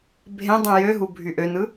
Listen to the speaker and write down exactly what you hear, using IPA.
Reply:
bʱ ẽ dˤ ũ j ø ɦ u bʱ y ʔ ø n ɯ

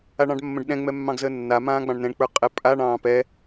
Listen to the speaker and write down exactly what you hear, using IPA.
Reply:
a ɳ ɑ̃ ɖ mː ə̃ ɖ ɗ ɛ̃ ŋ͡m ɛ mː ɑ̃ ɡ z əː nː a m ãː ɡ͡b ɑ̃ ɳ n ɛ̃ ɳ k͡p ə˞ qʼ ɛ pʼ a ɳ ɑ̃ː p ɛ

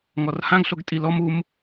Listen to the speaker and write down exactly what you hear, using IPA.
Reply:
ŋ ɔ r h ã ɡ ɬ o ɡ tʼ i l ɔ m u m

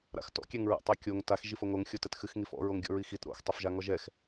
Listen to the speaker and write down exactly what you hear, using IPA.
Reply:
ɾ a̰ x t ɔ̰ kʲ ɛ ŋ ɹ a̰ tˤ a kʲ o ŋ t a x ʒ i f o ŋ o ŋ xʲ o t ɛ t x ɨ x ŋ i f ɔ̰ ɹ o ŋ ɡʲ ɔ̰ ɹ i x i t ɾ o̰ x tˤ ɛ f ʒ a ŋ ɔ ʒ ɛ x

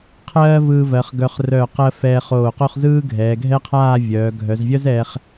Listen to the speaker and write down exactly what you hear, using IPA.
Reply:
qʰ ɜː˥ v ɯː˧ v ɜ˩˧ χ ɡ œ˧ χ r œː˧˩ q ɜ˧ f ɛː˧ χ oː˧˩ q o˥˧ χ z ɯː˥ ɡʱ ɛː˩˧ ɡʱ ɛ˥ qʰ aː˥˧ vʲ œː˩˧ ɡʱ œ˩˧ z vʲ œ˥ z ɛː˧ χ

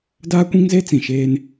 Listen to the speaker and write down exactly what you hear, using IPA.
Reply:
d aː˦ kʷ ĩ˦ ŋ z e˦ t͡s ĩ˨ ʃ eː˦ n

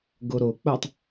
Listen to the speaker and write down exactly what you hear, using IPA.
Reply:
ɡ o ɾ o k͡p o tˤ

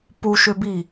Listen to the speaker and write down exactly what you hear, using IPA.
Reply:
p u ʃ ʏ b i

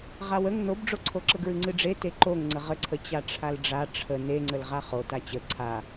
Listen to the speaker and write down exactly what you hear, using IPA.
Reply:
ʁ a w ə ŋ n o b ɖ͡ʐ o ǀʰ o ǁ ə ɡ ɹ ɨ ŋ͡ǀ ɨ ɖ͡ʐ e t e ǃ o ŋ ŋ͡ǀ ə ʁ ə ǀʰ ə t͡ɕ a ʈ͡ʂʰ a l ɖ͡ʐ a ʈ͡ʂʰ ə n e ŋ͡ǀ ə l ʁ a χ o t a t͡ɕ ə ǀʰ a

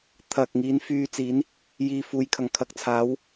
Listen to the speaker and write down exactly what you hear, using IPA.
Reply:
t̪ʰ ɐ˨ k̚ ŋ iː˨˥ n f yː˧ t͡s iː˨˥ n | j iː˧ f uː˨˥ j kʰ ɐ˨˩ ŋ kʰ ɐ˧ k̚ t͡sʰ aː˨˥ w

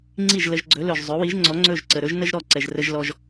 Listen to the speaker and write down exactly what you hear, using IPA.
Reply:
ŋ͡ǀ i˥˩ ʒ l ə˧ ʒ ɡ͡ǀ ɵ˩˥ l ɵ˩ ʒ zˤ ɵ˩˥ w i˩˥ ʒ ŋ͡ǀ ɔ˩˥ ŋ͡ǀ ɵ˥˩ ʒ ǀ ə˩ ɾ ɵ˥ ʒ n ə˥ ʒ ɾ ɔ˥˩ ǀ ɛ˩ ʒ r ə˧ ʒ l ɔ˧ ʒ

